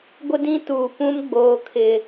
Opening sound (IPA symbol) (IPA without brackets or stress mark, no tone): ɡʷ